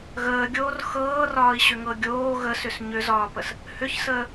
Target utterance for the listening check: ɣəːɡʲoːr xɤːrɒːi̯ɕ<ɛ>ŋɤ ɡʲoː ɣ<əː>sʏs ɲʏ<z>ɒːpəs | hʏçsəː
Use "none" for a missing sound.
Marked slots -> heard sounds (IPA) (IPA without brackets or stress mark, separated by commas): ʏ, ə, z